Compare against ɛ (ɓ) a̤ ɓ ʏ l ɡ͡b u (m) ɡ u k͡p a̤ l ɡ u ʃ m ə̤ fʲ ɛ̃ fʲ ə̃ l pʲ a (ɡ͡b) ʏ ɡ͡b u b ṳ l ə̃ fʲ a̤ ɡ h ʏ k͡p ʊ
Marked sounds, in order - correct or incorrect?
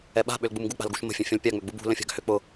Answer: correct, correct, incorrect: ŋ͡m

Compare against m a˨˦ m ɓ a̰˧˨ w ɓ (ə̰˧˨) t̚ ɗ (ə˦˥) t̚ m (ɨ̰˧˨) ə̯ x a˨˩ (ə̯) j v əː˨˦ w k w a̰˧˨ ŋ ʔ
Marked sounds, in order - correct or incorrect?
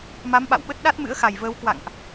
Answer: incorrect: ə˦˥, incorrect: a˦˥, incorrect: ɨ̰˧˥, incorrect: none

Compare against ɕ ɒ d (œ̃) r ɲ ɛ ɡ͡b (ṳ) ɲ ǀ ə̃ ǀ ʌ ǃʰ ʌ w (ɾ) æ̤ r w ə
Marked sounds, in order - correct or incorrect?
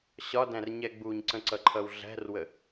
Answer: incorrect: æ̃, incorrect: u, incorrect: ɮ

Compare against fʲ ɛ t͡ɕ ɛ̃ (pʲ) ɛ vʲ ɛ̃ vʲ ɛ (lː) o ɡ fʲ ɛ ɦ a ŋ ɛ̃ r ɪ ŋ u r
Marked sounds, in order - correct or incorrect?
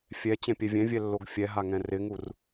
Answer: correct, correct

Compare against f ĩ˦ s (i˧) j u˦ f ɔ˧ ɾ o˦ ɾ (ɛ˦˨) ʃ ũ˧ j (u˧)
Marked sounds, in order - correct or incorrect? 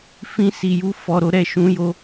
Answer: correct, correct, incorrect: o˧

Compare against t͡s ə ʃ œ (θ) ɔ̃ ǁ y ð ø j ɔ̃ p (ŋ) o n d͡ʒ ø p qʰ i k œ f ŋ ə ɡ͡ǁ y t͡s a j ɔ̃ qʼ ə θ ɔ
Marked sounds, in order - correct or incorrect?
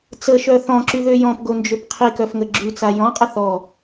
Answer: correct, incorrect: ɡ

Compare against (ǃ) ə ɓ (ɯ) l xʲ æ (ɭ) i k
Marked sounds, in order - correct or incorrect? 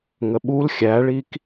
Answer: incorrect: ŋ, incorrect: u, correct

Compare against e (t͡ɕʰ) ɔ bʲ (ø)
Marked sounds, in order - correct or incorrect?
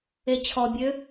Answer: correct, correct

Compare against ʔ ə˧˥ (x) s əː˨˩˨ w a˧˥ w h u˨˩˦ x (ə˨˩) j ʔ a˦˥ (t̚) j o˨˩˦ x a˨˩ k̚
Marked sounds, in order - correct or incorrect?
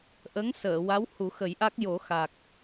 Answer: incorrect: ŋ, incorrect: ə˨˩˦, incorrect: k̚

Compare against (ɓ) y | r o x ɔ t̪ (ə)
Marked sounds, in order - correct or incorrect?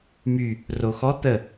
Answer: incorrect: m, correct

